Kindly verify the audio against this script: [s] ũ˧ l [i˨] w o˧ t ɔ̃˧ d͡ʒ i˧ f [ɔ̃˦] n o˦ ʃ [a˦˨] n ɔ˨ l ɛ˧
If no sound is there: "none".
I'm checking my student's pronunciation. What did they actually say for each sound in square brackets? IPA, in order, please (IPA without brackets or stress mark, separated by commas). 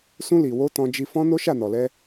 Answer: s, i˨, ɔ̃˦, a˦˨